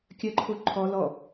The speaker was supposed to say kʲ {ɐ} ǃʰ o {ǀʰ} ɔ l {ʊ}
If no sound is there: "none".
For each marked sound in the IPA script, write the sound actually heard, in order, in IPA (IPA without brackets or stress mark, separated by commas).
ɐ, ǃʰ, ɔ